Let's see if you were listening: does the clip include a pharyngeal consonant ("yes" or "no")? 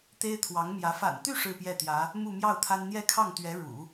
no